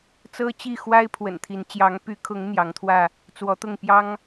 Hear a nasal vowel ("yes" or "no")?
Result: no